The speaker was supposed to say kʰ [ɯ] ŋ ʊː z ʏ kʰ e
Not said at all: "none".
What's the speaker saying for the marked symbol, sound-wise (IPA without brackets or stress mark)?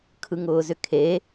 ɯ